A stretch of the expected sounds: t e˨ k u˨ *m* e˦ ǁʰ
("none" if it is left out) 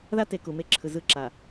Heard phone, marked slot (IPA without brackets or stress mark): m